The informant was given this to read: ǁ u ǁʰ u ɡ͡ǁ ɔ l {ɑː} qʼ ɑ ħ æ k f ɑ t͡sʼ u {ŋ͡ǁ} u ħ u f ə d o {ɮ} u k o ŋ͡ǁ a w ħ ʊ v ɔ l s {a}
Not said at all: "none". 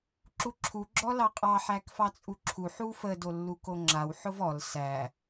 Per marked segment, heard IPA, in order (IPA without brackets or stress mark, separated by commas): ɑ, ǁʰ, lː, æ